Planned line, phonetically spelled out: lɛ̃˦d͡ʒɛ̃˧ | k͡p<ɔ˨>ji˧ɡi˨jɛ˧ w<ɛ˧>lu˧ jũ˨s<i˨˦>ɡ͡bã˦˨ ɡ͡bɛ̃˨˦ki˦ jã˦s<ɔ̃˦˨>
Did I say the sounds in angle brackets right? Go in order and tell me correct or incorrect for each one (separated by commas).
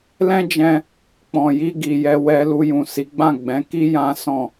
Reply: incorrect, correct, correct, correct